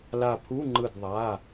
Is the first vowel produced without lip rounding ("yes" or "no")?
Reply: yes